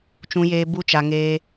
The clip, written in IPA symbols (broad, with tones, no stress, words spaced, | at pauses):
t͡ʃũ˧jeː˧ bu˦t͡ʃa˧ ŋeː˧